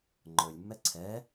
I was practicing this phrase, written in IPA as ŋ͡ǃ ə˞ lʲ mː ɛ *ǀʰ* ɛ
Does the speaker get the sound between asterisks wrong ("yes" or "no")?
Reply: no